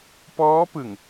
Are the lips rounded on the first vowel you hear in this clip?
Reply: yes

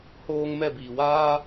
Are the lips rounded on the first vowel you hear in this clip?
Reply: yes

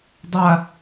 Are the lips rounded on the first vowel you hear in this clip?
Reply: no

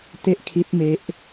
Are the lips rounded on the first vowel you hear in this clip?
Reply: no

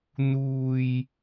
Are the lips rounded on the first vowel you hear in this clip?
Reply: yes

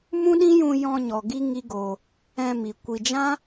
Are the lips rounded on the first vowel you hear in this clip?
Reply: yes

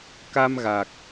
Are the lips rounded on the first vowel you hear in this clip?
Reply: no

